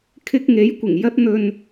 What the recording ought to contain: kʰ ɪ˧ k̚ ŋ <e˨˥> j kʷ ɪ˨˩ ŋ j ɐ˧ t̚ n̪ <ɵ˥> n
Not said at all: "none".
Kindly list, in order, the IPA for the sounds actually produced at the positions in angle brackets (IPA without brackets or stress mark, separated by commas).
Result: e˨˥, ɵ˨